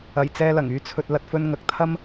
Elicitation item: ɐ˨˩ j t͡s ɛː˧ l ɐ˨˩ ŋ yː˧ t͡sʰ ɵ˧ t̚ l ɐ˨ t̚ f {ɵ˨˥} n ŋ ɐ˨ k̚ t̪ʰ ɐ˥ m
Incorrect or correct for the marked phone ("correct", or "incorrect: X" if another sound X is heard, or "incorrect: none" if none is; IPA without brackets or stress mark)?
incorrect: ɵ˧